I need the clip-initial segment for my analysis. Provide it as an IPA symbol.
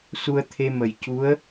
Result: s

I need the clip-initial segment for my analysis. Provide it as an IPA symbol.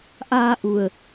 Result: ʔ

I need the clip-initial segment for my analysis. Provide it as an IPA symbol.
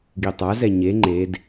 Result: ɡ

